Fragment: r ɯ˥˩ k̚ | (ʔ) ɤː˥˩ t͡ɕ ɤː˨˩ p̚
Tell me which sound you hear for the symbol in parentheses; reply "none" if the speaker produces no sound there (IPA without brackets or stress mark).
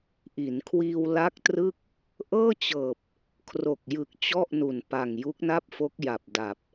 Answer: ʔ